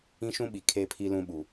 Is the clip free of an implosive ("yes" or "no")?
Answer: no